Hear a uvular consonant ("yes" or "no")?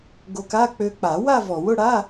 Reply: no